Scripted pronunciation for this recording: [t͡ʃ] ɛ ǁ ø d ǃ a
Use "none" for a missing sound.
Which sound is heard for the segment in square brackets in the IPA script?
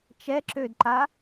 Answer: t͡ʃ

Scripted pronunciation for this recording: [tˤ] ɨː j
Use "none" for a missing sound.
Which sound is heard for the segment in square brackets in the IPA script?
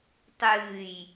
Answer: tˤ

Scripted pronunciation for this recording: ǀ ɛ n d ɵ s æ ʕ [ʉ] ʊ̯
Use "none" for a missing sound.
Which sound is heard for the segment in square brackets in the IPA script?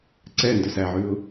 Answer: ʉ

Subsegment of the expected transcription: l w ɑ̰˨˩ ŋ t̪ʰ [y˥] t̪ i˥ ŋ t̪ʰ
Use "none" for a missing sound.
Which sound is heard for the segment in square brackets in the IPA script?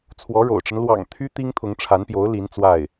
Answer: y˥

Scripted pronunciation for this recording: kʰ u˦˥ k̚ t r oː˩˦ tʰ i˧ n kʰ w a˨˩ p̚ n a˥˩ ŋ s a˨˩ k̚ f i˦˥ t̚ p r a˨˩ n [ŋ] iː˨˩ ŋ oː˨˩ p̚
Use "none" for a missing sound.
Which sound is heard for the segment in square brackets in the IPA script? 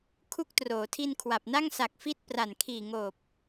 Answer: kʰ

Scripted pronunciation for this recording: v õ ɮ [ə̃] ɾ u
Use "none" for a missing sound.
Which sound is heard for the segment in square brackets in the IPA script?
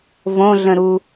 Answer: ə̃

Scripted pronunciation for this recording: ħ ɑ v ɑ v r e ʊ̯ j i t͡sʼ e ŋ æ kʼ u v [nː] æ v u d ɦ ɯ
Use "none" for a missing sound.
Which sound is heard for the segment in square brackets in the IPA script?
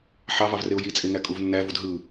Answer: nː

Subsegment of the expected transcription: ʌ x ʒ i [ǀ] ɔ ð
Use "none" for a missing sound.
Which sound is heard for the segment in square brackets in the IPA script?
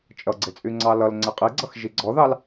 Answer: ɡ͡ǀ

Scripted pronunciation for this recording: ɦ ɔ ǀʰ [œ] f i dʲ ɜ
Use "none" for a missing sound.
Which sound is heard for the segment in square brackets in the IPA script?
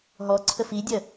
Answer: ə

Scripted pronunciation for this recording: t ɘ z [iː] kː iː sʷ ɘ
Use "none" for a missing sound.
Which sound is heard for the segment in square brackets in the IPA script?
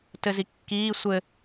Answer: i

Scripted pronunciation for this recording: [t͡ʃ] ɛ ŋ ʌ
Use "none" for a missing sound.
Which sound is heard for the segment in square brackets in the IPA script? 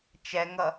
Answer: t͡ʃ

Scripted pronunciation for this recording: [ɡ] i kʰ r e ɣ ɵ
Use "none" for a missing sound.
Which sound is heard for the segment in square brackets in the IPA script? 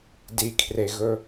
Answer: d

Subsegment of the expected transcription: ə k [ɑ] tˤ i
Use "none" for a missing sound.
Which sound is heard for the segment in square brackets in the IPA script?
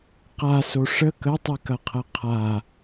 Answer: ə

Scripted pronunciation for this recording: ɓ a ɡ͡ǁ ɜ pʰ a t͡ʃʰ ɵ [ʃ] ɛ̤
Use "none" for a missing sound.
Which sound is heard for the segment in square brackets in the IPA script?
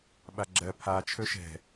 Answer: ʃ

